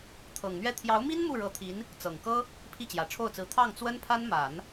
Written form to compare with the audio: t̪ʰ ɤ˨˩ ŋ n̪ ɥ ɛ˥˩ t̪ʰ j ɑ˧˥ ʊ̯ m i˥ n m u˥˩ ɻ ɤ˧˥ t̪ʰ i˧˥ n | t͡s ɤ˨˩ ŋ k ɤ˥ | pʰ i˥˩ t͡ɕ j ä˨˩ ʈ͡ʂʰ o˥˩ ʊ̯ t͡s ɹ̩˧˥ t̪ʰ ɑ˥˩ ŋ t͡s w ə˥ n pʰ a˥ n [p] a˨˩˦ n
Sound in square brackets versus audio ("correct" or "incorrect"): incorrect